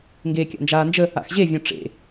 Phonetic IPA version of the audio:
ŋɡeːkʲa̰nd͡ʒaːnd͡ʒə | a̰xʑevʲɔ̃ ʈ͡ʂḛ

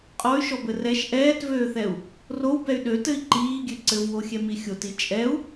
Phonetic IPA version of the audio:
qʼɔy̯ʃɔbɘ rɛʃ ʔɛːtvøːθɛu̯ | rowbɛy̯ ɗøtɘi̯ ǃiːɡʲø ǀɘvwoxʲɛmi xʲoti t͡ʃʼɛu̯

